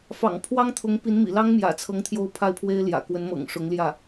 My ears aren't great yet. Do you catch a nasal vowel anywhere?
no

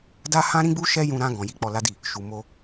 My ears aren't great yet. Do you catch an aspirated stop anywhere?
no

